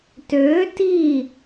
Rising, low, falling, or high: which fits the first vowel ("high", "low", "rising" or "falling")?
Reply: rising